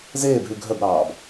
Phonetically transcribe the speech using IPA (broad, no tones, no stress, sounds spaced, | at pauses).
z eː b ɦ ʉ ɡʱ œ b ɾ ɑː b